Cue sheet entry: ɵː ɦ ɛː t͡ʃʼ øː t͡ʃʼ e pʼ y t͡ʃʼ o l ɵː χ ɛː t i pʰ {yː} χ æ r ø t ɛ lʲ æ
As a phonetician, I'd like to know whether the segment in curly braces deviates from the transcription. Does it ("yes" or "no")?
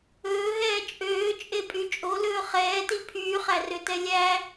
no